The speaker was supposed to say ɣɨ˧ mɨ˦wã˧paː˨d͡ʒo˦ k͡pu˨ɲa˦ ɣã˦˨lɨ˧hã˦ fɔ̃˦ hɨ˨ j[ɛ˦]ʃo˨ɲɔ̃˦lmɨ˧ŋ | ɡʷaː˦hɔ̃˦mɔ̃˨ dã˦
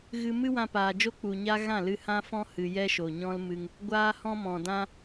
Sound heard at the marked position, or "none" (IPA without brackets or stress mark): ɛ˦